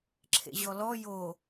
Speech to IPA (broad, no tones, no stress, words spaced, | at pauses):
ǁʰḛʑɔlɔ jo